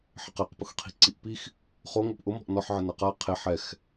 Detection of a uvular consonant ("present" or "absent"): present